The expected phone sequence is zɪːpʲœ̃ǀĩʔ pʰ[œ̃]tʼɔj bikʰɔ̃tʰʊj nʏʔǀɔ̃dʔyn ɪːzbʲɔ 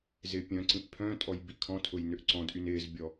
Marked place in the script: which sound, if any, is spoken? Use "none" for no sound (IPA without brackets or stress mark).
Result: œ̃